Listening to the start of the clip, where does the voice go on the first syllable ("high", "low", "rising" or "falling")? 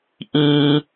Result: low